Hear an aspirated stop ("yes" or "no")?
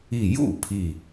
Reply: yes